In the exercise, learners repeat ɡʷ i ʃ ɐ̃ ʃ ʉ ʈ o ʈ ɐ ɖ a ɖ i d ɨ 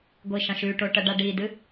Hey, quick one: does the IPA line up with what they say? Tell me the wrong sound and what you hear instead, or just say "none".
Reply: none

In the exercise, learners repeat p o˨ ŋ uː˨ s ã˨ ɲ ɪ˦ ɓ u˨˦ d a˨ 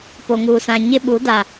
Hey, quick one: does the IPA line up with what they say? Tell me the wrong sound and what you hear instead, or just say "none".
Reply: none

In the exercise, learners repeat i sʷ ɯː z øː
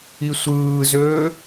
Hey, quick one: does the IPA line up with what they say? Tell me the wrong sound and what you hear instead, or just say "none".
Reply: none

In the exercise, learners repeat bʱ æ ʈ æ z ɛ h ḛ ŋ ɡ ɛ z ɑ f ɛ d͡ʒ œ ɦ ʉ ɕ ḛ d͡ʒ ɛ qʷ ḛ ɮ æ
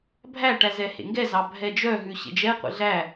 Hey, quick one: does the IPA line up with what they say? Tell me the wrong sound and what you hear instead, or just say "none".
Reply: f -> bʱ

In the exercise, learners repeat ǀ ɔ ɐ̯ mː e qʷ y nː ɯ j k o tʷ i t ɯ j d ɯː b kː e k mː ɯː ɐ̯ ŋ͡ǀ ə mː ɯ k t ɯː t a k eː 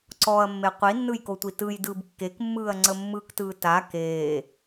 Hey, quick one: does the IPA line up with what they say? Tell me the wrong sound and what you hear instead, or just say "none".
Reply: y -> i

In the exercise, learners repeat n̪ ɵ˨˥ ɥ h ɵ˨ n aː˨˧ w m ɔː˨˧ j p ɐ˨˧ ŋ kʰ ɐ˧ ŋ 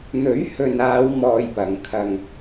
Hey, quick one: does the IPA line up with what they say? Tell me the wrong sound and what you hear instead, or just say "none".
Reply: ɔː˨˧ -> ɔː˧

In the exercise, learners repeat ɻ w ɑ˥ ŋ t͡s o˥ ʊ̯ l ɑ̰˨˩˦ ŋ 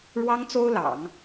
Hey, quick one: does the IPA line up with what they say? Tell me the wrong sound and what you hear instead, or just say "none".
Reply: none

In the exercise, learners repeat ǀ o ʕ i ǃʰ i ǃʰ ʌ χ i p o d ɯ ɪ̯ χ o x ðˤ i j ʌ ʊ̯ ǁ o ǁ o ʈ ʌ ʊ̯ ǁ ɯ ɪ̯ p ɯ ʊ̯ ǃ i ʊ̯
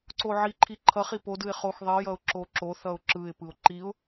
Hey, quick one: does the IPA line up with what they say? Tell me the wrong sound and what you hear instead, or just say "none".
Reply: ʈ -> θ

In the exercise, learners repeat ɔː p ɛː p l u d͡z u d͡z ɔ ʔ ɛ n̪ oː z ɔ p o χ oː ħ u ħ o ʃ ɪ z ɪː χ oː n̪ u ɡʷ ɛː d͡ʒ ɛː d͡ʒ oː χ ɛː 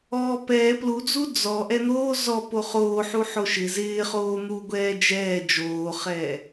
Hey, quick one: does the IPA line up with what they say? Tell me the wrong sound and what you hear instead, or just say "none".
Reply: none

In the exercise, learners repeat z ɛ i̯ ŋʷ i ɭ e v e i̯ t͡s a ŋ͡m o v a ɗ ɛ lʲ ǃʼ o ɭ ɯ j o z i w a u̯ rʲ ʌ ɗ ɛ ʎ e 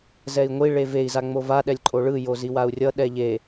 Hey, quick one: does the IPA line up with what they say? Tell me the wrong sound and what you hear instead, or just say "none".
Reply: t͡s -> z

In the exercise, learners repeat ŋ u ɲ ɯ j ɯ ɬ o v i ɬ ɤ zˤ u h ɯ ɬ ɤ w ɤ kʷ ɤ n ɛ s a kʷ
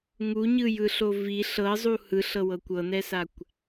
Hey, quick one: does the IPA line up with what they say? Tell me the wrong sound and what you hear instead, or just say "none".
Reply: none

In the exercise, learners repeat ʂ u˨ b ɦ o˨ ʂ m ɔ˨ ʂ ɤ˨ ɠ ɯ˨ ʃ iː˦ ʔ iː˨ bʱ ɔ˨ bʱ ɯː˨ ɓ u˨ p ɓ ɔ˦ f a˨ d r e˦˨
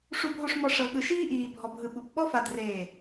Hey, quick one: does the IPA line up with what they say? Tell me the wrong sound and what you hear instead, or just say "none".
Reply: ɯː˨ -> ɯ˨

